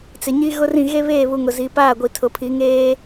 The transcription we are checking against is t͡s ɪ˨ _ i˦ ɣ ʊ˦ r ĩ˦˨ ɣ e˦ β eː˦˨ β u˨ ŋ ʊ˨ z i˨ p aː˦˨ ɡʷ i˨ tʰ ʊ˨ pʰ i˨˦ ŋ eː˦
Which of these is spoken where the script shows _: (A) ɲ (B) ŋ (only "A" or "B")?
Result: A